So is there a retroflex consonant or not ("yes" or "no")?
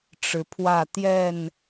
yes